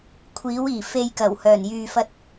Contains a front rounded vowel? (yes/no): yes